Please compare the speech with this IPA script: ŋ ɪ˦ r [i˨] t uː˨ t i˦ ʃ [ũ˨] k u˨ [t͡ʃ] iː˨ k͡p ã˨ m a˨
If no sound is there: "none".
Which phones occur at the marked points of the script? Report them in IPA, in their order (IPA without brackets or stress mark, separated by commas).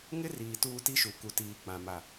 iː˨, u˨, t